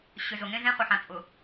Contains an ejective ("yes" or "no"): yes